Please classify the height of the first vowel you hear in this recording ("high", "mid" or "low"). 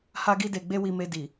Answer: low